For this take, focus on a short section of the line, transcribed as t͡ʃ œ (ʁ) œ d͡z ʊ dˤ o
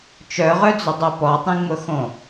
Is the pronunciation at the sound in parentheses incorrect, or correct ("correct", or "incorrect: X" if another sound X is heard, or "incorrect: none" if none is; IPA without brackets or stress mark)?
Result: correct